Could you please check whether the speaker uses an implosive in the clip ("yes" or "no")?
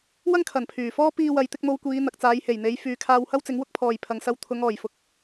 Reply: no